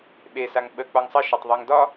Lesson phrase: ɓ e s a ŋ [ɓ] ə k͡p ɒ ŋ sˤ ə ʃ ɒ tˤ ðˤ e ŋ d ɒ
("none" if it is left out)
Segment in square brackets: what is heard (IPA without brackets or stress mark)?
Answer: ɓ